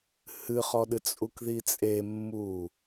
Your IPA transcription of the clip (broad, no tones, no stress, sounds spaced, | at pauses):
h ɨ χ ɔ ɗ ɨ t͡sʼ u k ð i t͡sʼ e mː uː